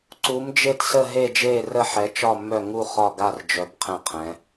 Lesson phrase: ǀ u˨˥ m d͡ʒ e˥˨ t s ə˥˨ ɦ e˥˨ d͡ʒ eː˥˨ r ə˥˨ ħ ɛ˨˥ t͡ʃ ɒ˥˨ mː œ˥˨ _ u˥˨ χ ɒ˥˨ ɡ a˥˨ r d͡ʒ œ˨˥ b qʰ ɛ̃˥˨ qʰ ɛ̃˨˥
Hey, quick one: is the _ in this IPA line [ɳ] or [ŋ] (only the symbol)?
ŋ